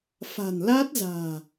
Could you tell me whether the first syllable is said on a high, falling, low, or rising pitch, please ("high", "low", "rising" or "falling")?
low